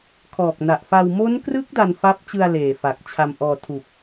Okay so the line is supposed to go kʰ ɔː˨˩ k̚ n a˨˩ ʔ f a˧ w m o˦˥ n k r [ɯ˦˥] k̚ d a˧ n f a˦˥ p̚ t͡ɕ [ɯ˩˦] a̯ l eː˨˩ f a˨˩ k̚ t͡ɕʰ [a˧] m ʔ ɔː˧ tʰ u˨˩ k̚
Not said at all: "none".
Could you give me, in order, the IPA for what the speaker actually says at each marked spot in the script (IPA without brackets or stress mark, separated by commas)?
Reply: ɯ˦˥, ɯ˧, a˧